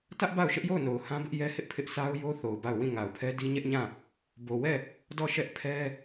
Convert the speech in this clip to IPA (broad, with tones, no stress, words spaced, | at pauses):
tä˦ʔ ba˦˨ʊ̯ ʃɪ˦ʔjo˦˨ʊ̯no˨ʊ̯ hã˦bɪ˦ʔ jɛ˦hɪ˦ʔpʰɪ˦ʔsʰa˦ʊ̯ jo˦ θo˨ʊ̯ba˦˨ʊ̯ wĩ˦˨ŋa˨ʊ̯pʰɛ˦ di˦ ɲɛ˦ʔɲã˦˨ | bo˨wɛ˦˨ | dɔ˦˨ ʃɛ˦ʔ pʰɛ˦